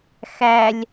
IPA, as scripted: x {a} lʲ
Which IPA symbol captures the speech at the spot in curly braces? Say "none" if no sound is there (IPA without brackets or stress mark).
æ